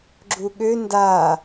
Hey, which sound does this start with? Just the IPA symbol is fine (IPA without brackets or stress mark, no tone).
ɡ͡ǁ